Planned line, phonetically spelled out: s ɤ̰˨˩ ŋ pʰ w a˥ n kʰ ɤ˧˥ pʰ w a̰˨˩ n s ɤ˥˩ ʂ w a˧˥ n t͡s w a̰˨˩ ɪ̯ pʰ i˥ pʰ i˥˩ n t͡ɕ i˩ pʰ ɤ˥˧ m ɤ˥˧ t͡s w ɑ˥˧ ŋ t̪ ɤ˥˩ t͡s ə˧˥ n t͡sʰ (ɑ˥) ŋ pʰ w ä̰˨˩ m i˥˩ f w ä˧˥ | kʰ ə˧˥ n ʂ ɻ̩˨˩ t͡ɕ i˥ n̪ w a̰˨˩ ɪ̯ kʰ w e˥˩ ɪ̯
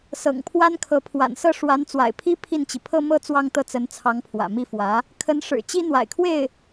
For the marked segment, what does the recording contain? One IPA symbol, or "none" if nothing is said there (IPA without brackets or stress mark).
ɑ˧˥